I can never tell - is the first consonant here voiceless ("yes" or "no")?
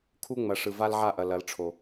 yes